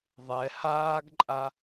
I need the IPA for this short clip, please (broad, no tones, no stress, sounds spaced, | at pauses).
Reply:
ðˤ ɛ h aː ɡ ǃʼ a